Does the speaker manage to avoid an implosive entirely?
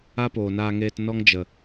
yes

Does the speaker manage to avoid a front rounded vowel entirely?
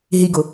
yes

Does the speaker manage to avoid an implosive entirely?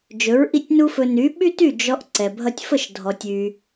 no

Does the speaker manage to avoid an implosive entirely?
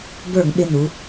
no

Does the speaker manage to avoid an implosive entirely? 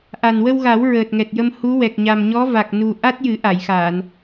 yes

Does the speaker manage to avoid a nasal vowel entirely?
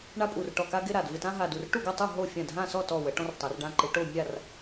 no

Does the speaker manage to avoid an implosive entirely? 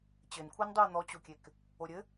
yes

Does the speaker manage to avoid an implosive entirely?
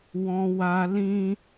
yes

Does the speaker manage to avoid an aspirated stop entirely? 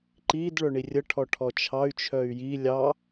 no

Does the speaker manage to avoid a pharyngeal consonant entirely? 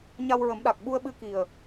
yes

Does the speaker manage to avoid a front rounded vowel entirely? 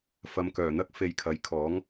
no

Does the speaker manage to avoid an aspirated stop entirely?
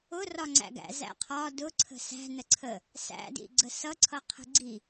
no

